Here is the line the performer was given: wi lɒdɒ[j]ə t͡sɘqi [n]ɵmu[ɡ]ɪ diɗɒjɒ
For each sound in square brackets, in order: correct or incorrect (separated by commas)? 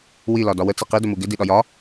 incorrect, incorrect, correct